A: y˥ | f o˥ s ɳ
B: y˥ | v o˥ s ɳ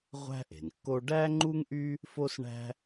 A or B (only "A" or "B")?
A